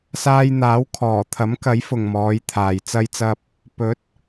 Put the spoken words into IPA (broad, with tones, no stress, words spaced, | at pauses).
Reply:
saː˧jn̪aː˨˥w kʰɔː˨˩t̪ʰɐ˨˥mkɐ˨˥j fʊ˨ŋmɔː˨˧jt̪ʰaː˨j t͡sɐ˧jt͡sɐ˧p̚ | pɵ˨˥t̚